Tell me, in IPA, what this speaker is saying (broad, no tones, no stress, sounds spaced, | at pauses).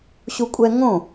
ɕ u kʷʼ ɛ ŋ õ